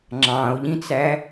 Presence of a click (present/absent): present